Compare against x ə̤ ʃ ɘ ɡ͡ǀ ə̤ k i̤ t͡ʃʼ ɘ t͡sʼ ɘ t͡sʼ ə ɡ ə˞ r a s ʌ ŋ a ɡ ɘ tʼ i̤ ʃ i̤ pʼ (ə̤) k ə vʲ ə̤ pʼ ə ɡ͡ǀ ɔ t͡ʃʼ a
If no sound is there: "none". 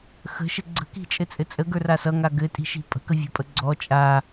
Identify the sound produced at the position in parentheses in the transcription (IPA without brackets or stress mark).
ə̤